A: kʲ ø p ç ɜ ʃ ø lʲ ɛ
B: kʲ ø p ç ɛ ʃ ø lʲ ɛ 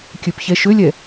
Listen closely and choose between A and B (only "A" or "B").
B